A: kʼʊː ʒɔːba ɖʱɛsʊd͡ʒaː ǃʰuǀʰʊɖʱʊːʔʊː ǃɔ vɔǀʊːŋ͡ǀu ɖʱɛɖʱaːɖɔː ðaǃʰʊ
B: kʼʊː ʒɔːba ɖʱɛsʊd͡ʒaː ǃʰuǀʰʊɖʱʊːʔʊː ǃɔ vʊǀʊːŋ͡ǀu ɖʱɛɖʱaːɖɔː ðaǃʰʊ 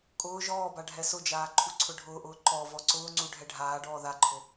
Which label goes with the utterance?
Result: A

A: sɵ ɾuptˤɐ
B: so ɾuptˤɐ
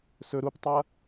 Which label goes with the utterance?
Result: A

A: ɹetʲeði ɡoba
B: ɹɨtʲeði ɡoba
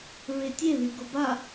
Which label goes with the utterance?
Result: A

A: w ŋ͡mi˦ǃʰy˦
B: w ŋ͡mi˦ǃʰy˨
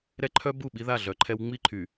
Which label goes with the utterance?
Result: B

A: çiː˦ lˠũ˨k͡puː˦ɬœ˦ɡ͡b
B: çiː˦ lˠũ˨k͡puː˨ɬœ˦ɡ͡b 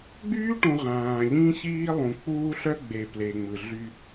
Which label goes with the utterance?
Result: A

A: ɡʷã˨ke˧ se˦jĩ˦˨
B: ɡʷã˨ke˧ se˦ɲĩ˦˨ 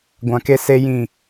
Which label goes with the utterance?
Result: A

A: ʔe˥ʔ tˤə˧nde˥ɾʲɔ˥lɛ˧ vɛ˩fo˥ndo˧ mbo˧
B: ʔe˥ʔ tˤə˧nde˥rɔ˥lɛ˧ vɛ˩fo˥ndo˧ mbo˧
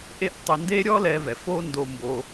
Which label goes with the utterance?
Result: A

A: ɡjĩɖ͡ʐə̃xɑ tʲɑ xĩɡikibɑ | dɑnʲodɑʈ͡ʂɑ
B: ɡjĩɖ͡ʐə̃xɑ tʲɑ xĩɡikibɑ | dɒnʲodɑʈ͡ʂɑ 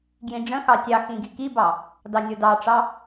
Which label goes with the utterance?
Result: A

